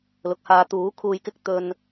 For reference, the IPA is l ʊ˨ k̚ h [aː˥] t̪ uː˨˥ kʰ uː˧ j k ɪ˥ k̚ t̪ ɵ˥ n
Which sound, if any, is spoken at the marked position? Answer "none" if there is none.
aː˨˧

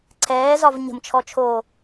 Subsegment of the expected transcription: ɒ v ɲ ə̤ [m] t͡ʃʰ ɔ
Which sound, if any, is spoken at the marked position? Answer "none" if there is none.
m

